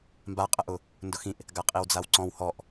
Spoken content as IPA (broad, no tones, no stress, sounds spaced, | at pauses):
m b a qʼ ə ʔ ʊ | n d ʊ x ĩ ʔ | ɡ a qʼ i w d͡z a w ǀ ɔ̃ w h ɔ ʔ